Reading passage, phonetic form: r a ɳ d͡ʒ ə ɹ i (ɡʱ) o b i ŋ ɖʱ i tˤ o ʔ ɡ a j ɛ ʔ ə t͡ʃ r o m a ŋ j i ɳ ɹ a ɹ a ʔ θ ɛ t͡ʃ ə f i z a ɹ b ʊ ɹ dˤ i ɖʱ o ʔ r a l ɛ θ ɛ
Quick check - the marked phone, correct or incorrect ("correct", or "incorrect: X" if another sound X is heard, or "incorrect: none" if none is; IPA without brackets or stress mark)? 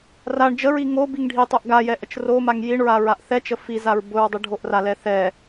incorrect: ŋ